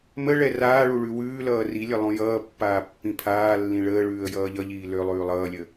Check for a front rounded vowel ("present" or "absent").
present